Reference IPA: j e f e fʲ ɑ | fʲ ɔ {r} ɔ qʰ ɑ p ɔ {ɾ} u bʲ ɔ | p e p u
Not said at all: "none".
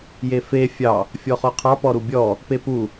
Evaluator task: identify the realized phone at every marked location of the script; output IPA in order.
χ, ɾ

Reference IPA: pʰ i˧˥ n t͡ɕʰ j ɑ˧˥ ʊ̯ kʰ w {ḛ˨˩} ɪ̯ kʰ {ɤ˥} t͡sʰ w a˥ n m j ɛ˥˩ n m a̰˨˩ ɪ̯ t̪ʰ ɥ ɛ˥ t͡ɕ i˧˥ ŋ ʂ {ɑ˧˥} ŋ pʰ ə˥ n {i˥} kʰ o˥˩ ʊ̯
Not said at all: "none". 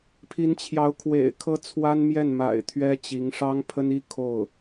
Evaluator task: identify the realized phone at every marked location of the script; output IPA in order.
ḛ˨˩, ɤ˥, ɑ˥, i˥

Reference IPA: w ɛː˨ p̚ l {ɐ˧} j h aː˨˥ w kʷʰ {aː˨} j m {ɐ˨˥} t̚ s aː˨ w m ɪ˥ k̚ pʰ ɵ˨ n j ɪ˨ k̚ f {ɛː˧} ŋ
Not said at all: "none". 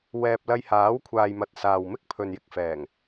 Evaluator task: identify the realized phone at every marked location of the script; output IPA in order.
ɐ˧, aː˨, ɐ˨, ɛː˨˩

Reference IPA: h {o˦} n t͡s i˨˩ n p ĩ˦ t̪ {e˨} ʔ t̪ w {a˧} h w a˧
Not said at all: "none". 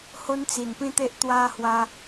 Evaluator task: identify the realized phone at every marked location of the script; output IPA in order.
o˦, e˦, a˦

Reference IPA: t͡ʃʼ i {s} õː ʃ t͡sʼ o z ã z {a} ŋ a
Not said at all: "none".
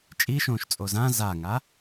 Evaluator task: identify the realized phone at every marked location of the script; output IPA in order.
ʃ, a

